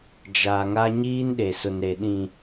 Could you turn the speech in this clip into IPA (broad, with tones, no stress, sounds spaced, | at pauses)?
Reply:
d͡ʒ a˨ ŋ a˦ ɲ iː˦ n ɗ e˨ s ʊ˨ n ɾ e˨ ɗ ĩ˨